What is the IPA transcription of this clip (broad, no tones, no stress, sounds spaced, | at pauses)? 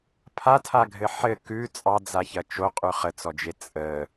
pʰ a tʰ a ɡʱ ɘ ħ ɘ k ʉ t͡sʼ ɑ d͡z a ç ɐ t͡ʃ o qʼ ʉ χ ə t͡s ɔ d͡ʒ e t͡sʼ ə